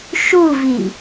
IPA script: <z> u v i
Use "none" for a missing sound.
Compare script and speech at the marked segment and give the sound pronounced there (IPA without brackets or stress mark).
ʃ